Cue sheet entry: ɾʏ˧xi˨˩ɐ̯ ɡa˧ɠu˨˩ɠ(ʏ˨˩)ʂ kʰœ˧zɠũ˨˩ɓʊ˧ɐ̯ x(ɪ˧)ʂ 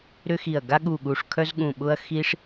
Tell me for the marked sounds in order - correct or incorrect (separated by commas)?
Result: incorrect, incorrect